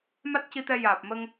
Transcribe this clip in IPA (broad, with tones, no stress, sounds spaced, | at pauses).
m a˦˥ t̚ c i˧ t̪ ɛ˧ j aː˨˩ p̚ m ə˧ ŋ